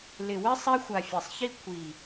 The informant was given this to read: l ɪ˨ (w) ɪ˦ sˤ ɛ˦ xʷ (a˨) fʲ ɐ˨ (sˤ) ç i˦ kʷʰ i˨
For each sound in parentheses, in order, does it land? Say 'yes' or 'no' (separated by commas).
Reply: yes, yes, yes